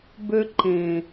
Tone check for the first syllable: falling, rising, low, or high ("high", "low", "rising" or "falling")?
high